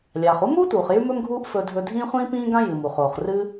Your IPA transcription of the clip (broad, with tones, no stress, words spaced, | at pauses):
lʲaː˩χu˥muː˥tuː˩χ jʉ˥mɵ˥mɡʱuː˥ʔ fɵ˧dʱɵ˧ dʱĩː˥χʷĩː˥pĩː˥ɡã˥ jɨ˩mu˩χoː˩χ rɨ˥